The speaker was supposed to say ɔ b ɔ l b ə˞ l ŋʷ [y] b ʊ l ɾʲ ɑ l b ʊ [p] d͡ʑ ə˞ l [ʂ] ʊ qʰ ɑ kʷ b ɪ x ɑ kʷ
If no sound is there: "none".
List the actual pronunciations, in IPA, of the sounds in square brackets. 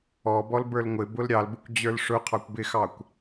ɪ, kʷ, ʂ

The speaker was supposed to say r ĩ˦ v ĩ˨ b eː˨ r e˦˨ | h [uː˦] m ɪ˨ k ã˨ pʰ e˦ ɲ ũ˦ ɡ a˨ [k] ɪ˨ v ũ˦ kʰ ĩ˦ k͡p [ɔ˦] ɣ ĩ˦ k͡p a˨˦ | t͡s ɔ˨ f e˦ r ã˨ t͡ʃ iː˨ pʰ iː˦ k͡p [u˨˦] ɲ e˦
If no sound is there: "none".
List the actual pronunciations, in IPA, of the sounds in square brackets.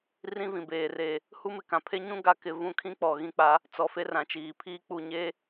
u˦, k, ɔ˨, u˨

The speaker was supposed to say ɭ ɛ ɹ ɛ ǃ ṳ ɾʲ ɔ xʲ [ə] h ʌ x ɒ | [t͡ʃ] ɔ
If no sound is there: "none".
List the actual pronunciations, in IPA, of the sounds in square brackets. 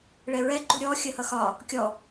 ə, kʲ

